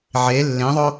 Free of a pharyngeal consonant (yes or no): no